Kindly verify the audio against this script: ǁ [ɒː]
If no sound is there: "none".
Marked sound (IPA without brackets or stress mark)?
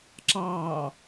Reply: ɑː